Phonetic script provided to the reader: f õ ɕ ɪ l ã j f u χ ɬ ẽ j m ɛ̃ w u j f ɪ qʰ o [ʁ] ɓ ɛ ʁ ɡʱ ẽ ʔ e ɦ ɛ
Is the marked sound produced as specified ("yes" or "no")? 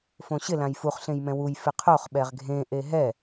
no